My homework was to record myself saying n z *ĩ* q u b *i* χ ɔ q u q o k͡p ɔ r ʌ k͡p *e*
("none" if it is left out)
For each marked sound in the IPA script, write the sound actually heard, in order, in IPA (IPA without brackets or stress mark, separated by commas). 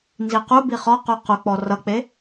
i, i, e